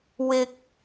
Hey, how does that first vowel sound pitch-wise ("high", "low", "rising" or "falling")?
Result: high